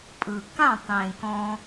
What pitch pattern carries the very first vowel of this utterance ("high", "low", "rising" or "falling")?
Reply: low